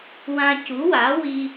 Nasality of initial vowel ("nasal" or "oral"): nasal